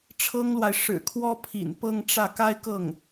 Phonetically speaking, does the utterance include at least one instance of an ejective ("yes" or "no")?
no